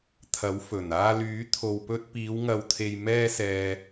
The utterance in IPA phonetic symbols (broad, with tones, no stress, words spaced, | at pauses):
t̪ʰɐ˨˥wfɵ˨˩n aː˧lyː˨˥t̪ʰo˨wpɵ˧t̚ piː˨˧wŋɐ˨wt̪ʰe˨j mɛː˧ sɛː˨